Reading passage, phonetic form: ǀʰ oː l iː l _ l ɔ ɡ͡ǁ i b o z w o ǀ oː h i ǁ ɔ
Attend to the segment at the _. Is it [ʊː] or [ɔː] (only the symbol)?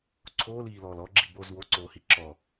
ɔː